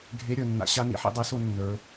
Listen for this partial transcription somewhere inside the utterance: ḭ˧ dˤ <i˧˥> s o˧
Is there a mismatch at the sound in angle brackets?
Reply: no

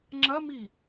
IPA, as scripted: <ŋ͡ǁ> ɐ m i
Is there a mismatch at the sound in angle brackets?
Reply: no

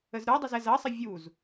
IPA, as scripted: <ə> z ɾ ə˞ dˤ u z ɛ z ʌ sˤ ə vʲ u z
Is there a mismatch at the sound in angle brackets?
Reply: no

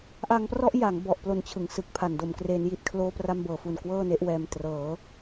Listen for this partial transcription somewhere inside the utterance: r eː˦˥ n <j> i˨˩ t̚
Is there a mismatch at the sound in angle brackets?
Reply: no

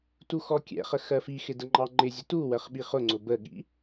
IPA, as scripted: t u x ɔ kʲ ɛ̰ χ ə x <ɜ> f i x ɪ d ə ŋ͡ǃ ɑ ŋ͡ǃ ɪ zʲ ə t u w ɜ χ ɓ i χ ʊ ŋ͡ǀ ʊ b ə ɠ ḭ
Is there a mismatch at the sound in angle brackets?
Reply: no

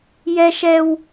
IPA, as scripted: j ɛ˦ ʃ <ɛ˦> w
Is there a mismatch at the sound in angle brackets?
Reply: no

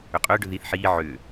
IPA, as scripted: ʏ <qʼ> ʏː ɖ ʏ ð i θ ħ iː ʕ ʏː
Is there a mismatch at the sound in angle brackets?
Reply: no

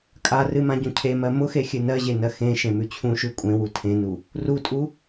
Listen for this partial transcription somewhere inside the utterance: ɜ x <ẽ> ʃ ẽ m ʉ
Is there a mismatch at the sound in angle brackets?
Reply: no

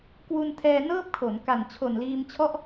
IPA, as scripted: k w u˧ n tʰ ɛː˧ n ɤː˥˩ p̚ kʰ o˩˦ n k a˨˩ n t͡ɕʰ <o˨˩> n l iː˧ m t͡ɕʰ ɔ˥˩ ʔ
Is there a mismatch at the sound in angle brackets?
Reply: no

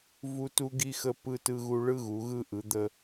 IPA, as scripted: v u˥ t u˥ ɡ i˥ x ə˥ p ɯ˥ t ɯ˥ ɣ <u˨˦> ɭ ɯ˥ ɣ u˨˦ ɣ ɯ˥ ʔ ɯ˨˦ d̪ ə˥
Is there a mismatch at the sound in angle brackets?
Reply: yes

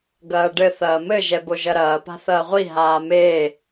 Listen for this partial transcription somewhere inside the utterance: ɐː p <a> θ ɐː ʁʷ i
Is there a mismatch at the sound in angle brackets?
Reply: yes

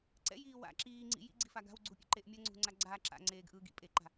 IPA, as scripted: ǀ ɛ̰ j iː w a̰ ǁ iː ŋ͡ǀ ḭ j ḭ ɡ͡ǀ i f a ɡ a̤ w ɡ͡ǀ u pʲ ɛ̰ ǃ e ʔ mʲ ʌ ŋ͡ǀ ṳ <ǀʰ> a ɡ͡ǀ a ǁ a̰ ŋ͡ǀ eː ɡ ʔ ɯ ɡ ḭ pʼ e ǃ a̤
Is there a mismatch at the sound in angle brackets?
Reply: yes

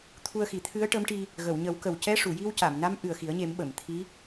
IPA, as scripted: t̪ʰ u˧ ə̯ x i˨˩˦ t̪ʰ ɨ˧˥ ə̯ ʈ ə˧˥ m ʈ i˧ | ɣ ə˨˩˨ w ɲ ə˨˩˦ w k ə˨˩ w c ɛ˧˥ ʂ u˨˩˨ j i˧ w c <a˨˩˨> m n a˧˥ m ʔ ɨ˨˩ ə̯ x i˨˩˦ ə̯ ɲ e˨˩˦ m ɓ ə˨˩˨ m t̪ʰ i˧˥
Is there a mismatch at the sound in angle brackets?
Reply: no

